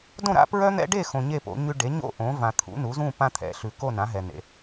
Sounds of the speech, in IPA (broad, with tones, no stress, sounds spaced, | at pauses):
d õ˥˨ ɾ a̰˦ p ɹ œ˦ n̪ ɛ̰˦ ɖ e˥˨ x õ˨ ɲ e˥˨ p o̰˩˥ ɲ ʉ˦ ɖ e˩˥ ɲ o̰˥˨ ʔ õ˩˥ v ã˨ t̪ʰ ṵ˩˥ n u˩˥ z ũ˥˨ p ã˦ t̪ʰ ɛ̰˩˥ ɬ ʉ˨ k o˥˨ n ã˩˥ ɦ ɛ˨ n̪ ḛ˨